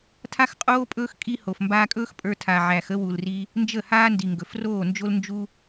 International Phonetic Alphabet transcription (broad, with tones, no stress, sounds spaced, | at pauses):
tʰ a˦ x qʼ oː˦ pʼ ɵː˦ x kʼ i˦ h o˨ f m b aː˧ kʼ ɵː˦ x pʼ ə˞˧ tʰ a˨ ʕ æ˨ x ə˦ w u˨ l r i˧ | n d͡ʒ ə˦˨ h aː˦ n d i˨ ŋ ɡ ɵ˨ f r oː˦˨ n d͡ʒ o˦ l n d͡ʒ u˦